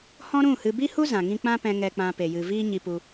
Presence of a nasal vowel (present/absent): present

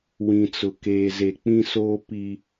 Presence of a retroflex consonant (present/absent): absent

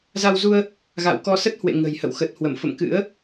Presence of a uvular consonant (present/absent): absent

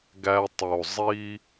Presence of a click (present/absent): absent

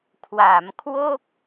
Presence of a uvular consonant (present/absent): absent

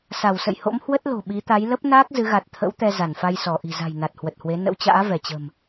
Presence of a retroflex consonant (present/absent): absent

